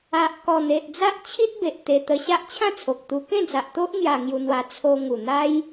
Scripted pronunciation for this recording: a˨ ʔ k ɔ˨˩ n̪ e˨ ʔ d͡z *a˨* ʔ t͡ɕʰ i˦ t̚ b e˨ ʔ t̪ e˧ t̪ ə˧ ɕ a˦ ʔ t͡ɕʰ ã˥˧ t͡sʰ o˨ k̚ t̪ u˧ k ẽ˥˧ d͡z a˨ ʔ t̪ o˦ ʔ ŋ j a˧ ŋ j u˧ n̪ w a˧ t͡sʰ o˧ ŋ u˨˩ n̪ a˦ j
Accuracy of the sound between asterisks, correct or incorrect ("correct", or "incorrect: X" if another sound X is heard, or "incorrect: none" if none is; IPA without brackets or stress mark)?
incorrect: a˦